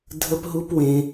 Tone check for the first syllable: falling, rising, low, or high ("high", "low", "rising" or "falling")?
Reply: high